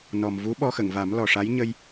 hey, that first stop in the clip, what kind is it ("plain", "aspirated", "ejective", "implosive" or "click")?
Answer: implosive